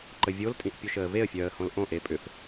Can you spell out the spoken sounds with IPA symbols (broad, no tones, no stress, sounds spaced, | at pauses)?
ǃ ə vʲ o l tʼ ĩ ʔ pʲ o ʃ əː v e ə̯ fʲ œː ə̯ h õ l ʔ õ ʔ e pʼ ʏ f